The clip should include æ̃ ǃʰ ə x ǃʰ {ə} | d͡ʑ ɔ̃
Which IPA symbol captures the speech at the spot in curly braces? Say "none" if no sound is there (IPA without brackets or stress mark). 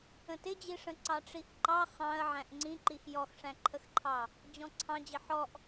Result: ɑ